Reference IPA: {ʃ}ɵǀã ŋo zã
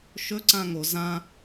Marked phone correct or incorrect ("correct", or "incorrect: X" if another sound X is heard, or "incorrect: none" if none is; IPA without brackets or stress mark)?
correct